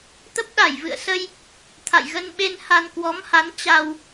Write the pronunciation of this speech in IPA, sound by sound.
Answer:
t̪ ə˦˥ p̚ ɗ a˧˩ j v ɨ̰˧˨ ə̯ s ə˧ j | t̪ʰ a̰˧˨ j ɣ ə˧ n ɓ e˧ n h a˧ n k w ɔ˨˦ m h a˨˦ n t͡ɕ a˧ w

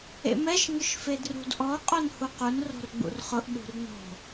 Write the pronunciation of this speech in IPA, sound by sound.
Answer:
ḛ m ɛ ʃ ŋ ʊ ʃ f e d r ṳ d ʔ ɔ qʼ o n h u q u n r o̤ r ɡ͡b ṵ r χ ʊ ʔ ɗ ṳ r n o̤

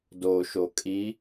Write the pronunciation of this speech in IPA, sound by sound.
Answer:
d o ʃ o kʼ i

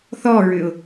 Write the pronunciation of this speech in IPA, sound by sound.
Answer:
θ ɔ ɹ ʏ ʊ̯

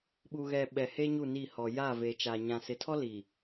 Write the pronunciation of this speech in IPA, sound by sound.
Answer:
ɓ u˨ ɣ ɛ˨ ɓ ɛ˨ h e˦ ɲ u˦˨ n i˦˨ h ɔ˨ j a˦˨ v e˨ t͡ʃ a˨ ɲ ã˨ s ɪ˨˦ tʰ ɔ˦ l iː˨

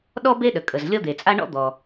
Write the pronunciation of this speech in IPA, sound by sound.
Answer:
ɗ ɔ˥ b e˥ ɗ ə˩ kʼ ə˩ z lʲ ɔ˥ d̪ e˩ t͡sʼ a˥ ɳ ɔ̰˥ d̪ ɔ˩

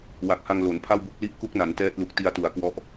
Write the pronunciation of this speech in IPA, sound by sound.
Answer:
w a˨˩ k̚ h a˧ ŋ l o˩˦ n pʰ a˥˩ w b u˥˩ k̚ l i˦˥ ʔ k u˦˥ k̚ n a˩˦ n t ɛː˦˥ t̚ l u˨˩ k̚ t i˧ a̯ t u˩˦ a̯ k w ɔ˦˥ ʔ

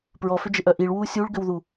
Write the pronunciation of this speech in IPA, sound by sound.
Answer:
p ɹ ɔ f ʏ d͡ʒ e ʔ œ ʔ i ɭ w uː sʲ u ɭ ɡ ʏ w ð u

